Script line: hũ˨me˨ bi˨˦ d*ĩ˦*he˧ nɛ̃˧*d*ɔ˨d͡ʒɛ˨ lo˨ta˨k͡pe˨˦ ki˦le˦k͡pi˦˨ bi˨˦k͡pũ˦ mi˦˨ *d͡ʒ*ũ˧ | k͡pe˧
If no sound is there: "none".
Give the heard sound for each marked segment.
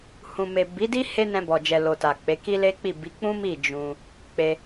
i˦, b, d͡ʒ

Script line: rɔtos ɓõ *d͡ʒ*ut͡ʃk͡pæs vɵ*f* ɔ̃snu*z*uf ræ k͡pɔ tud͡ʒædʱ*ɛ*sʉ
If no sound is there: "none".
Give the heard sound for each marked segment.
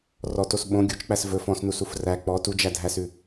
ɡʲ, f, s, æ

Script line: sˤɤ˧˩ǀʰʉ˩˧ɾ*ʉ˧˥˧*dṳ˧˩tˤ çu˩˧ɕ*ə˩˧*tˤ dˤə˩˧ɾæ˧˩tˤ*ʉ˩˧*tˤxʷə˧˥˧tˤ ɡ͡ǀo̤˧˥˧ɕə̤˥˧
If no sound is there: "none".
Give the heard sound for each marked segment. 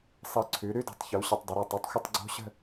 ʉ˧˥˧, ə˧˩, ʉ˧˩

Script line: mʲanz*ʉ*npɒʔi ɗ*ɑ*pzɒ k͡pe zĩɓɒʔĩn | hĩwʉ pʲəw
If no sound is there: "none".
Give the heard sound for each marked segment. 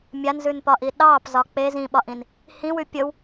ʉ, ɑ

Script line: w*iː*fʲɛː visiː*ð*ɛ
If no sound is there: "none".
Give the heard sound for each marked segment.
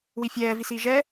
i, ʒ

